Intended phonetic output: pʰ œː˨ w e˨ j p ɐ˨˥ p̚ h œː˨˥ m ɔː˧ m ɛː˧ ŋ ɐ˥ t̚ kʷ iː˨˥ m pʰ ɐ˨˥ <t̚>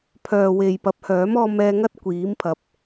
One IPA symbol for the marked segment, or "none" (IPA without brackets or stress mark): p̚